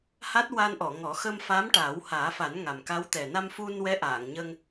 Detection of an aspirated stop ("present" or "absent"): absent